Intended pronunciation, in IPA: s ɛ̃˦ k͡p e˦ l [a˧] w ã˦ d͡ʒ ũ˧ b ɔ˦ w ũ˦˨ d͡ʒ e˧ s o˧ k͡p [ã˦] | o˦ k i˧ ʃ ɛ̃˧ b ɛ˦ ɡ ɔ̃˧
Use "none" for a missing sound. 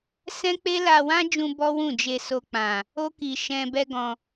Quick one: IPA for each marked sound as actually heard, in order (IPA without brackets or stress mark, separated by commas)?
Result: a˧, ã˨